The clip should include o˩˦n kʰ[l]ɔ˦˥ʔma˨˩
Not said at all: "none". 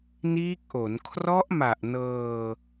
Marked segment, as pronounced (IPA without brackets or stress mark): r